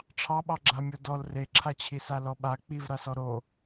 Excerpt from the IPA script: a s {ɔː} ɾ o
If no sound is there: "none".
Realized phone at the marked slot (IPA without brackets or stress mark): ɔ